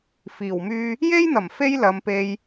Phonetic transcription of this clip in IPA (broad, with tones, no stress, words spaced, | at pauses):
fiː˨˩wmyː˧ | je˥jn̪ɐ˨˩m fe˥jlɐ˨˧mpe˧j